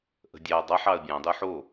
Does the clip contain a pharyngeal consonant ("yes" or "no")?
yes